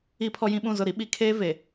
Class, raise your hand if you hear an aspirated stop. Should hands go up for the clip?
yes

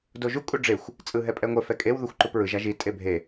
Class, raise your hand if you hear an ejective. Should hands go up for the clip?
yes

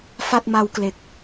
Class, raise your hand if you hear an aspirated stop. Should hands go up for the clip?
no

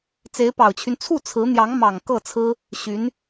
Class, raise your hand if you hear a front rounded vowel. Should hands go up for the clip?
yes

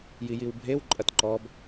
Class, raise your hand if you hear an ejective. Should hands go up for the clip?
yes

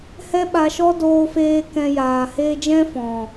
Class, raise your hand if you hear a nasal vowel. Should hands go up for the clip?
yes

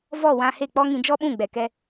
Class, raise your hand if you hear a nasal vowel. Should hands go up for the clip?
yes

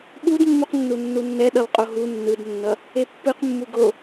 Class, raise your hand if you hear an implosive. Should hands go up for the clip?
yes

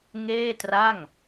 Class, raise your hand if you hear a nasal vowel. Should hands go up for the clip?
no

